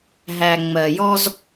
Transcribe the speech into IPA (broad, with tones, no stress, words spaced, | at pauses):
ɦæ˨ ŋ͡mɜ˨jɔ˧z